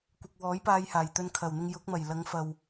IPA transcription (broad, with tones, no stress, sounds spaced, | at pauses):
kʷ ɪ˨ k̚ w ɔː˨˥ j p aː˧ j h aː˨˩ j t̪ ɵ˧ n kʰ ɐ˨˩ w n̪ ɪ˧ ŋ j ʊ˨˥ k̚ m ɐ˨˩ j l ɐ˨˧ ŋ f ɐ˨ w